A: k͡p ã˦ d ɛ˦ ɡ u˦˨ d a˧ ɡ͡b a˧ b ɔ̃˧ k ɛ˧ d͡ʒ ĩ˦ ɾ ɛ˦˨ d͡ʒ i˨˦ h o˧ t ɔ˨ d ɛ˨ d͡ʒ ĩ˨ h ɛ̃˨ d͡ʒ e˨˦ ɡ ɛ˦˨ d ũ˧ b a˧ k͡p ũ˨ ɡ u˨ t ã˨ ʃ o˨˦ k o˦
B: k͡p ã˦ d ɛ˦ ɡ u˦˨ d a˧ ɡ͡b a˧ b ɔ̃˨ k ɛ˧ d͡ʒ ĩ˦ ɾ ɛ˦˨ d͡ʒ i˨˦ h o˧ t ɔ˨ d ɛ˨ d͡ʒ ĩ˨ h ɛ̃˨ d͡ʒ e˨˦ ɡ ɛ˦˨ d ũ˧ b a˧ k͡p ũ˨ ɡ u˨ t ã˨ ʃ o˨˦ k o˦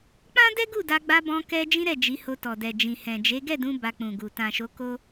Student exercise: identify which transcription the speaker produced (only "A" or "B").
A